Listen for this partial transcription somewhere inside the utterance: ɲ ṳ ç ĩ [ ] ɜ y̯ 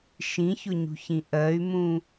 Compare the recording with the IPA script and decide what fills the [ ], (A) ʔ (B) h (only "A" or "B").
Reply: A